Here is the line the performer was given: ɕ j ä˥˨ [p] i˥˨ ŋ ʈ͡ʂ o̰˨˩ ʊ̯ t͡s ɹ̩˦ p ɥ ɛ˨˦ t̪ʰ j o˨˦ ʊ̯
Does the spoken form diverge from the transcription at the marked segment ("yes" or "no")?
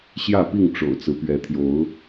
no